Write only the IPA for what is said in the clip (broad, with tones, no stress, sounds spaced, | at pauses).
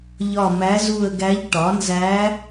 ʎ ɒ˦˨ m æ˧˥ z u˦˨ ə̯ ɡ æ˧˥ ʎ ʈ ɒ˩˥ n z æ˧˥